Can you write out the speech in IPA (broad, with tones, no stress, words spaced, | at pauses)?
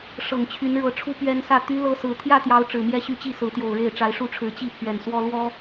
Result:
ʂɤ˨˩ŋt͡ɕʰy˨˦nɻɤ˨˦ʈ͡ʂʰu˦ pɥɛ˦n sä˥˨ t̪y˦ lɤ˦sɹ̩˨˦ t̪ʰjä˥˨t̪jɑ˨˦ʊ̯ ʈ͡ʂɻ̩˨˩mjɛ˥˨ɕy˥˨t͡ɕi˥˨ sɹ̩˨˦t̪jo˨˩ʊ̯ɻe˥˨ɪ̯ ʈ͡ʂa˨˦ɪ̯ʂu˦ʈ͡ʂʰɻ̩˨˦ t͡ɕi˥˨ pʰɥɛ˨˩nswɔ˦ lwɔ˦